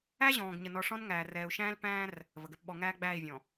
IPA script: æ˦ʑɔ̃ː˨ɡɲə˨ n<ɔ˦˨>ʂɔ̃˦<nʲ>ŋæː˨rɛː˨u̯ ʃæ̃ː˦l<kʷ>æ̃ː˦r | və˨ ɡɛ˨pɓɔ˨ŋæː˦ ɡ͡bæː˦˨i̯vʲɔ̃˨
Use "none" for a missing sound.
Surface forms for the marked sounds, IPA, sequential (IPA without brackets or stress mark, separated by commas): ɔ˨, n, p